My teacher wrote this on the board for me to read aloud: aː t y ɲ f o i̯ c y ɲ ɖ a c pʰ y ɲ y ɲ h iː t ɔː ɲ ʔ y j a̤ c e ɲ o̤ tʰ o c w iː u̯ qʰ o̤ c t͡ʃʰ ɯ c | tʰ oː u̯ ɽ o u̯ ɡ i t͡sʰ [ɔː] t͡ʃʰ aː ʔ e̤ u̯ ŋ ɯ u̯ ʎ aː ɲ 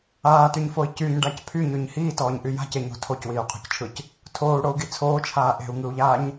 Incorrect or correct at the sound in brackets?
incorrect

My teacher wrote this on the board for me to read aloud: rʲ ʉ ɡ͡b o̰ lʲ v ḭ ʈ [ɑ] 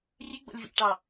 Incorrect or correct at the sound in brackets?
correct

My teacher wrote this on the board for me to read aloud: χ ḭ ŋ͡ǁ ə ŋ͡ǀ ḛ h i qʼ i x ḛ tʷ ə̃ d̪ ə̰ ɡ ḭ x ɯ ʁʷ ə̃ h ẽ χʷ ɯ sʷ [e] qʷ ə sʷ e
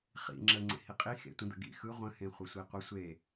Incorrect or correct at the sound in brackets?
incorrect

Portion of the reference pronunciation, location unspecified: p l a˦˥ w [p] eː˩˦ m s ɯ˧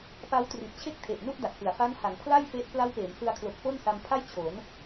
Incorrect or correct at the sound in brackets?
correct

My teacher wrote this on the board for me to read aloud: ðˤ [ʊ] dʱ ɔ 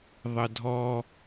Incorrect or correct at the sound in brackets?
incorrect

